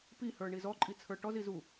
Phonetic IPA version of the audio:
p i h ə˞ ɳ i z ɔ ǃʼ i t͡sʰ ə˞ ʈ ɔ z i z u

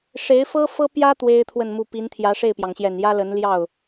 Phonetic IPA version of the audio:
ʂ e˧˥ ɪ̯ f ɤ˥ f ɤ˥ p j ä˥ t̪ w e˥ ɪ̯ t̪ʰ w ə˥˧ n m u˥˩ p i˧˥ n t̪ʰ j ä˧˥ ʂ e˥˩ ɪ̯ p j ɑ˩ ŋ ɕ j ɛ˨˩ n j ä˥ l ə˧˥ n l j ɑ˥˩ ʊ̯

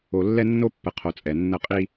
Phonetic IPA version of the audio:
o˨ lː ɛ˦ nː o˦ pː ə˨ qʰ o˨ t͡sʼ ɛ˨ nː ə˦˨ qʼ i˦

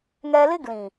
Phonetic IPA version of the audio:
ŋ ɛ˧ l ɪ˦ ɡ l ĩ˨

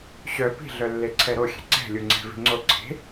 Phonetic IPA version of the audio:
ɕ œ p i̤ ɮ œ lː e ǀʰ ɛ ɾ o xʲ ɛ̤ ǀ ɛ̤ lʲ u ŋ͡ǀ ɛ̤ v i̤ ŋ͡ǀ o ǀʰ e̤

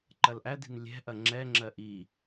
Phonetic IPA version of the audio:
ǃ ɐ l ʔ æ d i̤ n lʲ ɛ̤ ʔ ɐ ŋ͡ǁ ɛ ŋ͡ǁ ɜ ʔ i

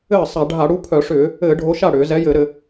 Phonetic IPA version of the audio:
ɘː˥˩ sˤ a˧˩˧ ɖʱ a˧˩˧ ɽ u˨˥ pʰ œ˧˩˧ ʂ ʏː˧˩˧ | ɘː˧˩˧ ɖʱ o˨˥ ʃ a˥˩ ɽ ʏː˧˩˧ z ɛ˨˥ j ɘ˧˩˧ ɾ ɘ˧˩˧

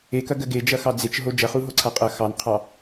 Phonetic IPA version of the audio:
e k ɐ ɡ ɜ ɡ e d͡ʒ ɐ x ɑ d͡z e t͡ʃ ɦ o d͡ʒ ɐ χ u ɦ o ǀʰ a qʼ ɐ x ɑ n qʰ ɑ

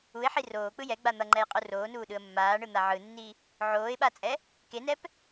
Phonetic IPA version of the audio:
u ɪ̯ ħ i r oː k͡p ɯ j ɛ ɡ͡b a n̪ ʌ ŋ͡ǃ ɛ j qʼ u r oː n uː ɗ ɯ ə̯ mː aː ɳ ɯ n̪ a ʕ ɯ nː i | ʕ oː ɪ̯ ɓ a t͡sʼ ɛ | k e n ɛ p

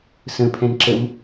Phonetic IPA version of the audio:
s ə̃ pʰ ɛ̃ n ǁ ə m

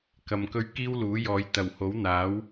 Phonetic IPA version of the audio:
k ɐ˨ m k ɵ˧ ɥ k iː˥ w l uː˨˥ j ɔː˨˧ j t̪ ɐ˨˩ w h o˨˥ w n̪ aː˨˥ w

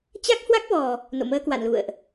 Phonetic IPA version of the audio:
t͡ɕ a˦˥ k̚ h w a˦˥ k̚ v ɔ˨˩ | n o̰˧˨ m əː˧ k w a̰˧˨ n l ṵ˧˨ ə̯ ʔ

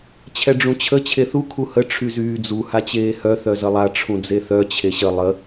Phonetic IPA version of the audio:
t͡ɕʰ ɛ ɖ͡ʐ ũ t͡ɕʰ ə t͡ɕʰ e θ u kʰ u h ə ʈ͡ʂʰ y z yː d͡z u h a t͡ɕ eː h œ θ œ z ə lˠ a ʈ͡ʂʰ ũ d͡z e θ œ t͡ɕʰ e ɕ ə lˠ ə

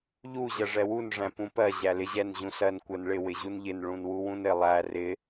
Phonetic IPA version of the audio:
ʎ u ʑ ɜ ʐ ɛ w u n ʐ æ̃ p ũ p ɜ ʑ æ l ɪ ʑ ɛ n ʑ ũ s ɜ n kʷ ɜ n ɭ ɪ w ɪ ʑ u n ʎ ɪ n ɭ ũ n w u w ũ n ɪ lˠ æ r ɪ

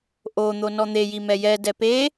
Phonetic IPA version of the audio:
ʔ o n̪ o n ɔ n̪ e j i m ɛ j ɛ d ɛ p e

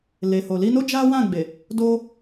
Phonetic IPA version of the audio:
l e˨ h o˨ l i˧ n o˦ d͡ʒ a˦ w ã˦˨ ɡ͡b e˨ | d o˧

